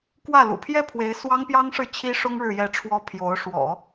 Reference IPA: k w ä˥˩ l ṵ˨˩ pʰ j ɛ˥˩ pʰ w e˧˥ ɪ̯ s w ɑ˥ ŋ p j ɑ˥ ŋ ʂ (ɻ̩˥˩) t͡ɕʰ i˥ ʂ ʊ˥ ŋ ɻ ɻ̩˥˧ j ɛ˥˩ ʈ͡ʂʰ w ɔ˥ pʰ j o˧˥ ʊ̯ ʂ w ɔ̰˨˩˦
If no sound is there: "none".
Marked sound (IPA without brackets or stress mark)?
ɻ̩˥˩